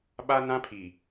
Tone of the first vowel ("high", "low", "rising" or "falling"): high